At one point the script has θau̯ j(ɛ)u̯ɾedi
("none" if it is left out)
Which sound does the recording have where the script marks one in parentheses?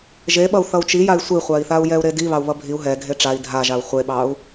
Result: ɛ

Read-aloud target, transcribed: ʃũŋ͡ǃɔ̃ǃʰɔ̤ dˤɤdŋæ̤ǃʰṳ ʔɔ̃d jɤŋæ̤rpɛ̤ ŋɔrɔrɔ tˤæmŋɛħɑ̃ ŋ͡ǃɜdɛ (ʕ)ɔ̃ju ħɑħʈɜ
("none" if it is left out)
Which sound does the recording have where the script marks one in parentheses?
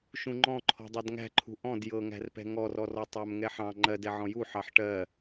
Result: ʕ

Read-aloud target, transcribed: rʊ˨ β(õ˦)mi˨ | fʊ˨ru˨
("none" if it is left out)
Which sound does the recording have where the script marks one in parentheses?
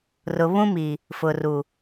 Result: ũ˦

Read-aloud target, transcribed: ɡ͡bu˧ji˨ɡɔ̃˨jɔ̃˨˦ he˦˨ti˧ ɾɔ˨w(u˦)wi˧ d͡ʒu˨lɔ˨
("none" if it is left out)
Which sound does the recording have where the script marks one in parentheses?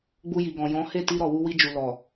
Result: u˧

